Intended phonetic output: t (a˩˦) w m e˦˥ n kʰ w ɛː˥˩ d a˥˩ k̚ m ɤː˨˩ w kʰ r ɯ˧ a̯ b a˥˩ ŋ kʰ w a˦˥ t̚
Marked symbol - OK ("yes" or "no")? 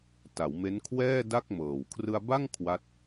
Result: yes